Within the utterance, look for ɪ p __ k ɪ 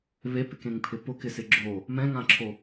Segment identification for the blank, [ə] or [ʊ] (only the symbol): ʊ